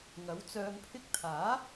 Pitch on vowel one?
rising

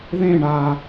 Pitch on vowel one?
falling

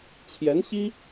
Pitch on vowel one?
rising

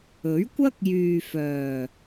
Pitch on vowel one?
rising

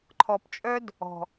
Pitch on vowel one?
low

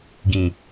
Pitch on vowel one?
low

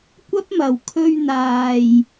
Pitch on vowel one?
high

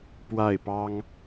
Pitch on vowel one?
falling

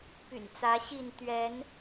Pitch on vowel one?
low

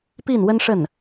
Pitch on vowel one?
falling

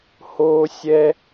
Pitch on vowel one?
high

